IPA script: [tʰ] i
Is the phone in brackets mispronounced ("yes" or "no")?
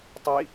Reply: yes